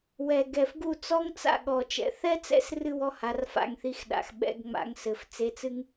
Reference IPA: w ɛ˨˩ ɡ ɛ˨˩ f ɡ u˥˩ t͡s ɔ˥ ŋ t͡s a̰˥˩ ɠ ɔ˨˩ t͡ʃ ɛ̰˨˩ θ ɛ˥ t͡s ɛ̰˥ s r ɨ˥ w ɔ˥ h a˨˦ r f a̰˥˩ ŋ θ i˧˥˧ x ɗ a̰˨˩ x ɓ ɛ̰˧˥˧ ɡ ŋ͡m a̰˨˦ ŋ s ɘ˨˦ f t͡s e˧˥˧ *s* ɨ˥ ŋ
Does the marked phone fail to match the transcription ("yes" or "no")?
yes